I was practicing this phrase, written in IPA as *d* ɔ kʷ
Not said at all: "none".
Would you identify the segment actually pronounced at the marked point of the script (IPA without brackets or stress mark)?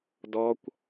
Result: d